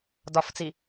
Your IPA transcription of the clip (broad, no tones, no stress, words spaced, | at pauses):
dɒft͡si